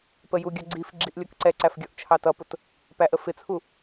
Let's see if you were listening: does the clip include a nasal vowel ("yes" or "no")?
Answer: no